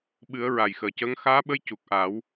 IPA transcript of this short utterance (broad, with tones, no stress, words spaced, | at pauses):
ɓɨ˨˩˦ə̯ ɹa˨˩jxəː˨˩cəː˧˥ŋ xaː˧˥ɓə˧˥j cu˨˩k̚ ʔaː˨˩˦w